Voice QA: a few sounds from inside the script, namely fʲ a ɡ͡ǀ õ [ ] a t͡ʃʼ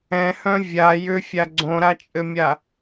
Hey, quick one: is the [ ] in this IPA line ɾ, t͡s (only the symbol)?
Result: ɾ